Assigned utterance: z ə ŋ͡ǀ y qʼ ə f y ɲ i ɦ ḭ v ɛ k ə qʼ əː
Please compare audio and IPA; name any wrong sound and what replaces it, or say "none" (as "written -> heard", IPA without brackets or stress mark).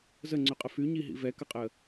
none